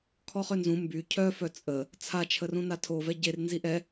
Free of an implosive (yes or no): yes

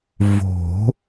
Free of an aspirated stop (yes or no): yes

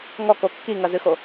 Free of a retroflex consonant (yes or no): yes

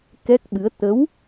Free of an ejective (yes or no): yes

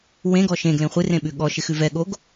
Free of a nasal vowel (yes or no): no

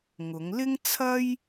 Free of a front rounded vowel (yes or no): yes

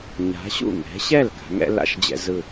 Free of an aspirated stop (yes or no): yes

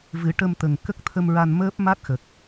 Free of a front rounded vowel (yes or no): yes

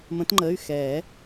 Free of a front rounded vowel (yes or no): no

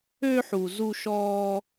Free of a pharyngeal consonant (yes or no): no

